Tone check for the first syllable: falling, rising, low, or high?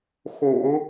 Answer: low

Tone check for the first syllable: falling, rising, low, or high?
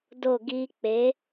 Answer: falling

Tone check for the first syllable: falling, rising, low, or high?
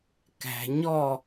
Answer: low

